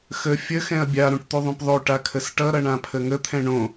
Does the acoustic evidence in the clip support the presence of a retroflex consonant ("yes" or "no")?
yes